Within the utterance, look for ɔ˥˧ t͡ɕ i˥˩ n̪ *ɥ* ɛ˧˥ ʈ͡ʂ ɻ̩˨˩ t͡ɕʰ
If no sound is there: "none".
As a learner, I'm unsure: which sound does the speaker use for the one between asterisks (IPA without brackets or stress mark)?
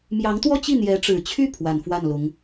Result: j